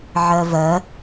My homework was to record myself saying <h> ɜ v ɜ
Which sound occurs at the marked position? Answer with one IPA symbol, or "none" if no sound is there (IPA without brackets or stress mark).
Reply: ʕ